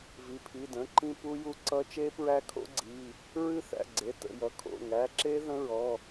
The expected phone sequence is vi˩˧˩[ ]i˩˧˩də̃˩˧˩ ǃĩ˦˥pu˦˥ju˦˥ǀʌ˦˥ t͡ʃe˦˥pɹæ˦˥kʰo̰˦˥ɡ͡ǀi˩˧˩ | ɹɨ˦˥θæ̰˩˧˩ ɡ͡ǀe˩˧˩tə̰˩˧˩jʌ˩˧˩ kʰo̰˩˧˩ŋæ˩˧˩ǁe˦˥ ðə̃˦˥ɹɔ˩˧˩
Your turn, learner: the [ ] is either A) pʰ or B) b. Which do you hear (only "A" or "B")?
A